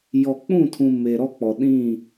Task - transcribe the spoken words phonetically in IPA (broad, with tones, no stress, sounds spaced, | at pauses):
j ɔ˨ k͡p ũ˦˨ tʰ ũ˨ m e˨ ɾ ɔ˦ k͡p ɔ˨ ɗ ĩ˦˨